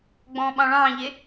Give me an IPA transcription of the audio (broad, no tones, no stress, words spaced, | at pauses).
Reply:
ɡ͡bɔ̃ːɓɑ̃ɭɑ̃ːʎe